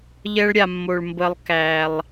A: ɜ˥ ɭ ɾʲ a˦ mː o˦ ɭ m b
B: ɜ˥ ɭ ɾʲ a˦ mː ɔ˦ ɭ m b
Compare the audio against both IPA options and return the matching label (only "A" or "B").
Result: A